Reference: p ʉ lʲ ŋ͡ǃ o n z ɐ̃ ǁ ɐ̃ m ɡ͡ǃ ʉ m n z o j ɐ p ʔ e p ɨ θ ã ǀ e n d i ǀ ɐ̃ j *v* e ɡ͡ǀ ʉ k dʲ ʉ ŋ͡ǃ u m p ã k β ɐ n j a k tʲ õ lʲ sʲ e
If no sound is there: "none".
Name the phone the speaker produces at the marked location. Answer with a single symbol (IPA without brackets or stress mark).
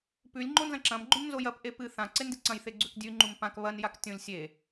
θ